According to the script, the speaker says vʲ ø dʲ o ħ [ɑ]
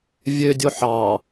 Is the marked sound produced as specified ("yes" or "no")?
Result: yes